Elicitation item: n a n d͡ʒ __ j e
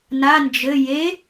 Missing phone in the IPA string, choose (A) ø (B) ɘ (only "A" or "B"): B